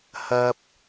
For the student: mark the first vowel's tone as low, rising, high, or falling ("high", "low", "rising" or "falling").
low